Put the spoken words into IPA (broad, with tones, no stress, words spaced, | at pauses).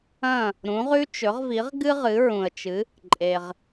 ɐ̃˥˩ | ɾũ˩˥ʁʉ˥t͡ʃɵ˩˥ʁvi˩˥ʁ ɡɨ˥ʁɨ˩˥ɹũ˩ə̯t͡ʃɨ˩˥ | ǃʼe˩ʁ